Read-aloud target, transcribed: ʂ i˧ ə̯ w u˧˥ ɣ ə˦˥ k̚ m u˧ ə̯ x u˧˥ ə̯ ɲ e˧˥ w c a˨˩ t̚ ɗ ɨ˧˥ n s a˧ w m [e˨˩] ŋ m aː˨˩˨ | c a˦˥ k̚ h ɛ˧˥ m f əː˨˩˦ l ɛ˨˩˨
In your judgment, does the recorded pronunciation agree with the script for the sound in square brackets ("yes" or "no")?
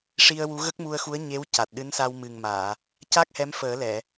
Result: no